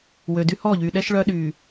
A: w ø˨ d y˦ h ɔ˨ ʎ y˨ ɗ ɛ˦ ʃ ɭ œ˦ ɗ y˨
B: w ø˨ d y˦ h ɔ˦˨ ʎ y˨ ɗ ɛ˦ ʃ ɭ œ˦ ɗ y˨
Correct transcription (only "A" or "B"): B